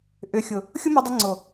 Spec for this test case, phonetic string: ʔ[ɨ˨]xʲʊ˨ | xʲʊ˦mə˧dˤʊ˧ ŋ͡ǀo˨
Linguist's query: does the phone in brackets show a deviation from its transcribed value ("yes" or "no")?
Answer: yes